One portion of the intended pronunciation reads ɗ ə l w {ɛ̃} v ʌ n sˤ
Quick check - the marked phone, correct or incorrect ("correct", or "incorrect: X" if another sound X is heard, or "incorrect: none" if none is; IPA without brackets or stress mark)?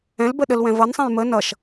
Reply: correct